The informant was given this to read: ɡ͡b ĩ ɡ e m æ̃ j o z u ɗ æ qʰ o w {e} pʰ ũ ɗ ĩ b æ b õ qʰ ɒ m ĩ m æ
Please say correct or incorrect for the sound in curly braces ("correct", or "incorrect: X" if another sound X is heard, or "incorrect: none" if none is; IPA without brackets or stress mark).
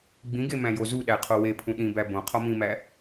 correct